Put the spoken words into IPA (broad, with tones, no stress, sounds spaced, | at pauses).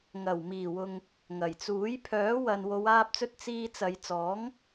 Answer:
ŋ ɐ˨˩ w m iː˨˩ w ʊ˨ ŋ | ŋ ɐ˨˩ j t͡s uː˨˥ j pʰ œː˨˥ w ɐ˨ n w o˨˧ w aː˧ p̚ t͡s ɵ˧ t̚ t͡s iː˧ t͡s ɐ˨˧ j t͡s ɔː˨˥ ŋ